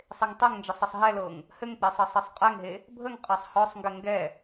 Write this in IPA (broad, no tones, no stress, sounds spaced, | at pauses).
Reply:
sˤ e ŋ tˤ ɛ ŋ n d͡ʒ ə sˤ ə sˤ ɦ ɛ l ɤ ŋ | h ɘ ŋ k͡p e sˤ ɤ sˤ ɤ sˤ qʼ ɛ ŋ ɦ e | bʱ ə ŋ qʼ ɛ sˤ h ɔ sˤ ŋ ɡ ɘ ŋ ɡ ɛ